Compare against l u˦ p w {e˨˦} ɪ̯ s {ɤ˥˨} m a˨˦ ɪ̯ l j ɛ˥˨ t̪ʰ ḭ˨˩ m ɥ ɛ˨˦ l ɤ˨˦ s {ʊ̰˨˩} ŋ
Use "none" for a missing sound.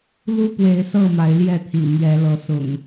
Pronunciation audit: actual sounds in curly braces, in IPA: e˨˦, ɤ˥˨, ʊ̰˨˩

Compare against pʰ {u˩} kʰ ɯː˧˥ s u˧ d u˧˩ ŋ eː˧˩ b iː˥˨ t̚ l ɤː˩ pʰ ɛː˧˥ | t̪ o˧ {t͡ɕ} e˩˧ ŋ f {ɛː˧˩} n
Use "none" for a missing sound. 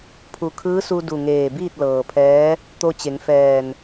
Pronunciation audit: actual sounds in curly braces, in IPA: u˩, t͡ɕ, ɛː˧˩

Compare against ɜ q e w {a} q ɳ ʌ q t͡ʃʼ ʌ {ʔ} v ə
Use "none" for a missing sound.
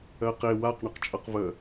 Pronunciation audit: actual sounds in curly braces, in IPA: a, q

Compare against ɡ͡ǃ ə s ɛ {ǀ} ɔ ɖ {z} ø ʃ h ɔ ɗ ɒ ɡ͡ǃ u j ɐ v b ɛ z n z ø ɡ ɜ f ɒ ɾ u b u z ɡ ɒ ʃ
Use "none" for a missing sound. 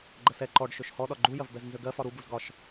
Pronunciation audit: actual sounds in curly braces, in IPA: ǃ, ʃ

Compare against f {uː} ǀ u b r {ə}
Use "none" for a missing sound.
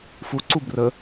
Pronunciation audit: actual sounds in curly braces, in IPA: u, ə

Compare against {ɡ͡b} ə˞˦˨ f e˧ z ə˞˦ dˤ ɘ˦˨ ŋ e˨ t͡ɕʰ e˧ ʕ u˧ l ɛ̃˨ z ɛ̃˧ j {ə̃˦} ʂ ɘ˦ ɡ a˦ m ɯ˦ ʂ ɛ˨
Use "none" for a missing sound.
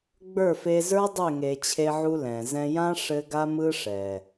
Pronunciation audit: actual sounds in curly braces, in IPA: ɡ͡b, ã˦

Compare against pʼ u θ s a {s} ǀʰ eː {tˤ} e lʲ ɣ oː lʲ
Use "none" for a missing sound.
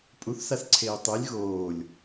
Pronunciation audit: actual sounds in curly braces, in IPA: s, tˤ

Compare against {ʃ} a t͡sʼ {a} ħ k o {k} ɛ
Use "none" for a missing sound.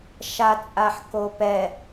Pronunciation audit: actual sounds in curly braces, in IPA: ʃ, a, p

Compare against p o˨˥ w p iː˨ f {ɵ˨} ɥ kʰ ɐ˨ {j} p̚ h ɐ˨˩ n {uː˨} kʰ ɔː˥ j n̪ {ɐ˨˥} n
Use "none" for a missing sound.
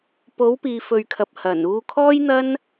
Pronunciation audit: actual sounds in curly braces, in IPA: ɵ˨, none, uː˧, ɐ˥

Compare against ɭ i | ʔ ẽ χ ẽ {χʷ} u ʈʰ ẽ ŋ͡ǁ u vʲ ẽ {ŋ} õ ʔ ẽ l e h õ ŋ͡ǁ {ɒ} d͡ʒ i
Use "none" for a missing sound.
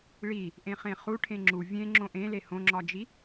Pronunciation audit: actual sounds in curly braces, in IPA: χ, ŋ͡ǁ, ɒ

